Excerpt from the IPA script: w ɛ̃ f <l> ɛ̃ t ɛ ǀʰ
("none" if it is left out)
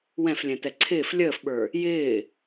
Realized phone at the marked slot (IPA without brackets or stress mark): lʲ